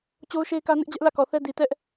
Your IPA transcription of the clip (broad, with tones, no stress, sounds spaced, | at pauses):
t͡ɕ o˦ ʊ̯ ʃ e˦ ɪ̯ k ä˦ n ɪ˦ ʔ d͡ʑ ɛ˦ ʔ l ä˦˨ k ɔ˨ θ ɛ˦ d i˨ t ɛ˦ ʔ